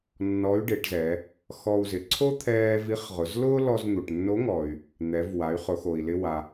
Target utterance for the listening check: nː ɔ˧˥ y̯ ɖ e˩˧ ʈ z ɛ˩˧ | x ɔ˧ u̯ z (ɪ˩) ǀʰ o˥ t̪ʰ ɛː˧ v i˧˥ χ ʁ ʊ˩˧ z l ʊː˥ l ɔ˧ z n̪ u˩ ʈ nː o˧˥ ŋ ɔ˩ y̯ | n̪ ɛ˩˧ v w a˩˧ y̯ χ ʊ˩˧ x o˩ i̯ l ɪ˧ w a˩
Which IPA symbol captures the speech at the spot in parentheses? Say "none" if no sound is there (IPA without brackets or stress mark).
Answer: ɪ˩